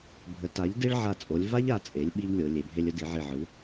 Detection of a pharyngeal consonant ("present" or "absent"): present